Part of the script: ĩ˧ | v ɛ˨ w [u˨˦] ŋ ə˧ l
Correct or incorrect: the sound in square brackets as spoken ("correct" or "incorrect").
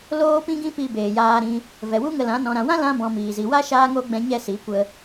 incorrect